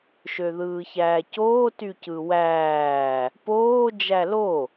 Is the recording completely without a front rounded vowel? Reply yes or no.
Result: no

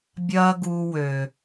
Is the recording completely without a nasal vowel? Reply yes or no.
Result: yes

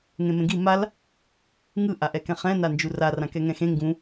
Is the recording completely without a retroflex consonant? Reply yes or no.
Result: yes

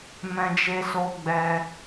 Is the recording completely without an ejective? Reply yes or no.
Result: yes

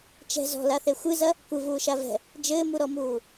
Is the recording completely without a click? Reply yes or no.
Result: yes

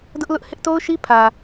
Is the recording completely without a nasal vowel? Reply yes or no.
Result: yes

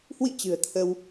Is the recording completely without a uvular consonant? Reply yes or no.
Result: yes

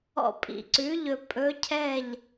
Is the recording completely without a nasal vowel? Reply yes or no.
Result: yes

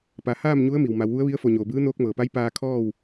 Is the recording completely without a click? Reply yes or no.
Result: yes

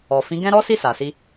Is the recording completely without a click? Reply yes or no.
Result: yes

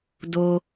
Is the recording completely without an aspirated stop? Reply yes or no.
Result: yes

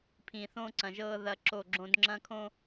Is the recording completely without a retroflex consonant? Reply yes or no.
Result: yes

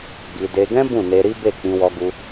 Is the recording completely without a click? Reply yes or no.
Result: yes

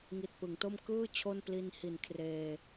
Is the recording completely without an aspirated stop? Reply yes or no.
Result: no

